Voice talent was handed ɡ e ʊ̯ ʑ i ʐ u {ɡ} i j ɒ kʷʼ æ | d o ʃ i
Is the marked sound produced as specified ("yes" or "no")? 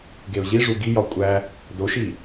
yes